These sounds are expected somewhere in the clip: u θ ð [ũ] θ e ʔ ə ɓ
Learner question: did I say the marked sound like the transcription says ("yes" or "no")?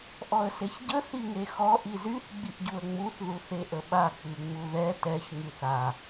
no